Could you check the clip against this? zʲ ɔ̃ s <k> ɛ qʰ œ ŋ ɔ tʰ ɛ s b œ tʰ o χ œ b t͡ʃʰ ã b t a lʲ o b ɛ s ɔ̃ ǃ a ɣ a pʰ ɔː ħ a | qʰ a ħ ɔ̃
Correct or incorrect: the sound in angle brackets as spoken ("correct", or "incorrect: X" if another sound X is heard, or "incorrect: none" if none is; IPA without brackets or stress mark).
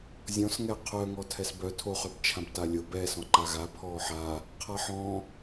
incorrect: ŋ